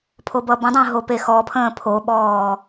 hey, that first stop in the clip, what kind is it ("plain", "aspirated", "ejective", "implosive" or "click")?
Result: aspirated